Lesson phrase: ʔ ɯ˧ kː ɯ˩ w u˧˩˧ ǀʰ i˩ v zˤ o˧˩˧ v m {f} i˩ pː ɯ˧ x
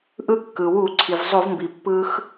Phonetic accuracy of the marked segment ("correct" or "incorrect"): incorrect